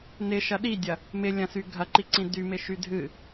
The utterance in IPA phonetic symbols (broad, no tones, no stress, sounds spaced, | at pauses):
n ɪ ʃ ɐ ɗ i dʲ ɐ | m ɪ lʲ ɐ̃ s y ɡʱ ɐ ǃ i ǀ ĩ d y m ɪ ʃ y dʱ ɨ